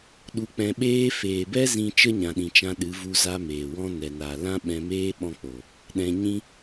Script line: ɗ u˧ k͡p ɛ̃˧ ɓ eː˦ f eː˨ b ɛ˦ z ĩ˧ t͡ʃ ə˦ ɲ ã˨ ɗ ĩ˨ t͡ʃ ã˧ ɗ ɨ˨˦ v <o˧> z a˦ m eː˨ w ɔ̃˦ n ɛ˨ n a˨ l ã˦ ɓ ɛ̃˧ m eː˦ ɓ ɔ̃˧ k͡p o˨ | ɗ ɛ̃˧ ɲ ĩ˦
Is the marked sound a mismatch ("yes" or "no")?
yes